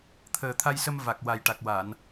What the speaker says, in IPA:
t̪ʰəː˨˩t̪ʰa˧jsə˧m va˨˩k̚ wa˨˩jʈa˨˩k̚wa˨˩˨n

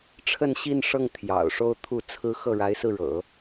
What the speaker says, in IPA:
ʈ͡ʂʰə˥˧nɕi˥˧nʂɤ˥˩ŋ t̪ʰjɑ̰˨˩ʊ̯ ʂo˥˧ʊ̯t̪ʰu˥˩t͡sʰɹ̩˥ xɤ˥˩ɻa˧˥ɪ̯sɹ̩˧ɻɤ̰˨˩˦

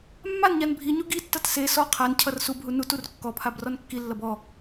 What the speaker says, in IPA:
mːanɲan bʱiɲu ɡitːʌt se sɔ qʰancʰʌr subɦu nutur kːɔpʰab rɔnkːilːʌb ɔ

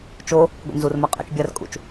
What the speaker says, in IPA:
t͡ʃo | ɡʷḭnzurma qʼɛ̰t͡ʃ bʲarkʼṵt͡ʃ

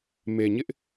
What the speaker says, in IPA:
me˨ɲɪ˦ʔ

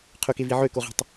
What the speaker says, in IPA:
qʰɵkevi ʕøkoʁi̤tˤ

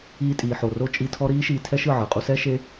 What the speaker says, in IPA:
iː˧tʼiː˨ħo˨ro˦ t͡ʃʼi˧tʰɔ˦ ɾiː˦ʃiː˧tʰɛ˦ʃɯ˦˨ ʕɯ˨qʼu˦ sɛ˦ʃe˦

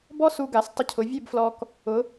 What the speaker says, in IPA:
bɔ˥su˧ ɡa˩˧stˤɪ˧cʰʊ˩˧ vʲe˥˧bflɔ˧k | ʊ˩˧

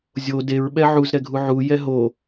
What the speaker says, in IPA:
zʲo deɹ ɓɛʕuz ɾɛɡʱuʕu jɛɦo

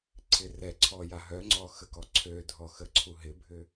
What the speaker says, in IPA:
ǀʰɪrɛǀʰɔ jaɦœŋ͡ǀɔ xəkɔǀʰødʱɔ xəǀʰuɦɪbʱʏ

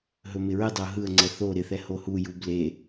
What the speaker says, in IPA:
ɦɵmɪɹɨdˤɪʊ̯ ɦɯə̯ŋ͡ǀɛ θo ɾɪθɛ hohuju ble

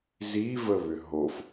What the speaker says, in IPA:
zivəβʏ ɦof

